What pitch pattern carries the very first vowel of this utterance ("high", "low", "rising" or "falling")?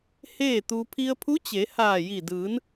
falling